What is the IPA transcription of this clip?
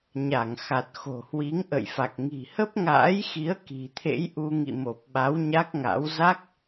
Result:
ɲa˧˩ŋxa˨˩t̚ xo̤˨˩hwi˨˦ŋʔə̰˧˨jfa˨˩k̚ ŋi̤˨˩hə˦˥p̚ŋa̰ː˧˥jxi˨˦ə̯ ki̤˨˩t̪ʰḛ˧˥jʔu˧ ŋḭ˧˨mo˨˩p̚ɓa˨˦w ɲa˦˥k̚ŋa̰˧˥w za˦˥k̚

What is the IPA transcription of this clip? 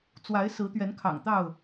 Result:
t͡swa˨˦ɪ̯ sɹ̩˨˦t̪ɥɛ˨˦nkʰɑ̰˨˩ŋt̪ɑ˥˨ʊ̯

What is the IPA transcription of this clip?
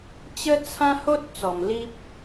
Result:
t͡ɕə˦ t͡sʰã˦ ho˦t̚ t͡sɔ˨˩mli˦p̚

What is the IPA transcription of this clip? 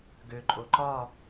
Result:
ɡøǃʼo ǃɒ

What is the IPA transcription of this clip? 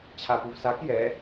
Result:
t͡ɕʰapuvsak jɛ

